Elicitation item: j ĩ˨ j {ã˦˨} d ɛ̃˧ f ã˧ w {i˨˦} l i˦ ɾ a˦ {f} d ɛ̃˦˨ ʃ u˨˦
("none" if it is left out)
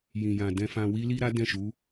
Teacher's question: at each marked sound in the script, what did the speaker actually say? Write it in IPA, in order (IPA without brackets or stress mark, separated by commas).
ã˨, i˦, none